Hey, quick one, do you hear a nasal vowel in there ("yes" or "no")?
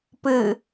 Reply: no